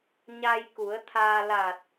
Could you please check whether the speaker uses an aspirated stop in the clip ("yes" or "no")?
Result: yes